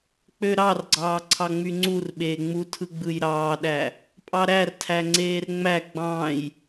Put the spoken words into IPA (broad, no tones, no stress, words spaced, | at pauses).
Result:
k͡pøɾɑrɡ͡ǀɑː ǀʰɑŋ͡myŋ͡ǀurɓeː ŋ͡mutʰɯ ɡ͡bɯjɾɑːɗæ | pʼɑɾærtʰæ ŋ͡ǀeːrŋ͡mæ ɡ͡bɑ̃j